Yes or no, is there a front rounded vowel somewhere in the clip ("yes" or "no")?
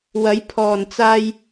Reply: no